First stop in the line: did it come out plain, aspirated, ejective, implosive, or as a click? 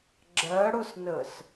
click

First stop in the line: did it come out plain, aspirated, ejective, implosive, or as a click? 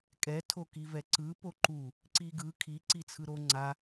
ejective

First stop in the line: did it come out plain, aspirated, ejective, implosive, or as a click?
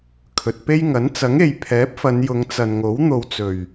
aspirated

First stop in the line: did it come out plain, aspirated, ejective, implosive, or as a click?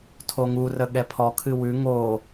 aspirated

